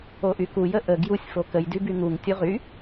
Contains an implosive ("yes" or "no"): no